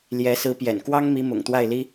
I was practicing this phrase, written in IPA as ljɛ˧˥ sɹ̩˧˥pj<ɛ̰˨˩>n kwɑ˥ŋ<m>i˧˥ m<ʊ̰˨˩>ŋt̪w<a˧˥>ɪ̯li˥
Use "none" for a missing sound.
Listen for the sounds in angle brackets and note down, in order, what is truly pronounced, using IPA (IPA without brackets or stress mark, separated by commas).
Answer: ɛ̰˨˩, m, ʊ̰˨˩, a˥˩